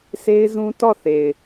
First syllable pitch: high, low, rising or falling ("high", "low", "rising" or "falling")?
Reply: high